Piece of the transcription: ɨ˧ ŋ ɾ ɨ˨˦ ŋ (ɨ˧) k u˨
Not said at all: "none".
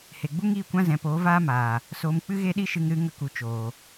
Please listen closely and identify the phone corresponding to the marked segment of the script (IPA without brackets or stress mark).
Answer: ə˧